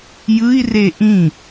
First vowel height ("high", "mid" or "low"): high